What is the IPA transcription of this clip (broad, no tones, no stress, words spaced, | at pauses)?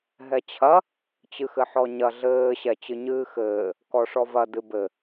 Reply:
ɦɛt͡ɕʰɐ | t͡ɕɨxɘħɔɲɐ ɮɘː ɕɛt͡ɕɨɲɨːxɘː | kɔʂɔvɐ dɨbɘ